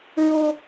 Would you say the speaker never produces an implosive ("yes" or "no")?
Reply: yes